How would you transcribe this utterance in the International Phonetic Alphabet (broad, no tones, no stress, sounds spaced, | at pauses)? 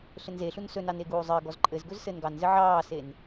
ɬ ɘ n z e ɬ u n s ɵ n ɑ n e ɡ uː zˤ ɘ ɡ ɔ z ǃʼ ɘ z ɡ ɵ z s ɘ n ɡ ɑ n z ɘ ʕ ɑː s e n